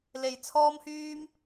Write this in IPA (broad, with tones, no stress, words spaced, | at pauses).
le˧jt͡sʰɔː˥mhyː˥m